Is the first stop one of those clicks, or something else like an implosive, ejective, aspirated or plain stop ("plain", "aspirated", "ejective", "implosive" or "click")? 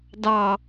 plain